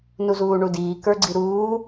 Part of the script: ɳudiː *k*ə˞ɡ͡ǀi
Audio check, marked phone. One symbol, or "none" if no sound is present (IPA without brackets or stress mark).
k